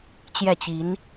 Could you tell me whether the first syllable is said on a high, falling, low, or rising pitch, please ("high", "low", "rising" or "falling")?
falling